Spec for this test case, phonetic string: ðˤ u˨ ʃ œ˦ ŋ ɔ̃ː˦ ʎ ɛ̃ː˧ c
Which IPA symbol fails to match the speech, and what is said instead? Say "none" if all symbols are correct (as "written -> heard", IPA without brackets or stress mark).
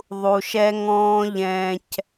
œ˦ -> ɛ˦